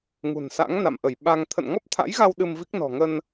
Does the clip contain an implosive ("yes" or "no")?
yes